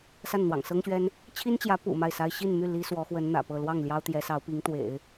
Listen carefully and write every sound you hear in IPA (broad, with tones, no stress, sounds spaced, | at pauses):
s a˥˩ n n̪ w ɑ̰˨˩ ŋ s ɤ˥ ŋ ɕ ɥ ɛ˥ n | t͡ɕʰ i˥ n t͡ɕ j ä˧˥ p ṵ˨˩ m a˥˩ ɪ̯ s a˥ ɪ̯ ɕ i˥˧ n m y˥˩ l i˥ s w ɔ˧˥ x w ə˧˥ n n̪ ä̰˨˩ p ɤ˥˧ l w ɑ˥˩ ŋ l j ɑ˥ ʊ̯ t̪ j ɛ˧˥ s ɑ˧˥ ʊ̯ p i˧˥ ŋ t̪ w ḛ˨˩˦ ɪ̯